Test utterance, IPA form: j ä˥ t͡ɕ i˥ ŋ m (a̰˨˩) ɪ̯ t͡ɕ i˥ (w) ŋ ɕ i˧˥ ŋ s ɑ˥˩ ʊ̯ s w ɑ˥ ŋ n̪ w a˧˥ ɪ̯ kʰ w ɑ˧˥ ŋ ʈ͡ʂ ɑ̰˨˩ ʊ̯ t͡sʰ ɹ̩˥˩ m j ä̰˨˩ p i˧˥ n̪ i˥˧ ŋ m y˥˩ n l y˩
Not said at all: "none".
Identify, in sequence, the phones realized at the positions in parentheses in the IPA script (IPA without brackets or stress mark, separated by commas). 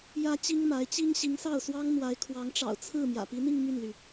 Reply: a˧˥, none